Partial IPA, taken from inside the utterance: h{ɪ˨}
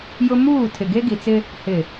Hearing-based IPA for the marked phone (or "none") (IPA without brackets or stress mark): ɪ˨